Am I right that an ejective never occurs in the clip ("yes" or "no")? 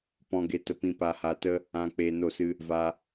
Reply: yes